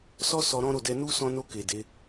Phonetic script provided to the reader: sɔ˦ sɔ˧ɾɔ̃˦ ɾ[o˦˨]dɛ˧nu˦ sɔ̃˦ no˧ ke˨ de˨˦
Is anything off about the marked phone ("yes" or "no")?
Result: no